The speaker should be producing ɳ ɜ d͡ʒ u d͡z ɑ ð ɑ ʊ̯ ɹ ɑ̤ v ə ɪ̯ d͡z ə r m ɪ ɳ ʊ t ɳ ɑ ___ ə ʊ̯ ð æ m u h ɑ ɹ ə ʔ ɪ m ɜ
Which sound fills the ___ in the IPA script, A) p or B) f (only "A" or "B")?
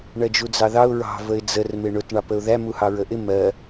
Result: A